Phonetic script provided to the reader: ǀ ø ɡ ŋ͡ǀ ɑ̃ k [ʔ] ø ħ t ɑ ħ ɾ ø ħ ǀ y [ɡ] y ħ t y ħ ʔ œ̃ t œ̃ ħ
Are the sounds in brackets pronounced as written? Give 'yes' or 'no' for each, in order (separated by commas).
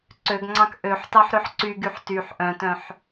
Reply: yes, yes